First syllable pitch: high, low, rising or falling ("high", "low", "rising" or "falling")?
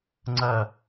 falling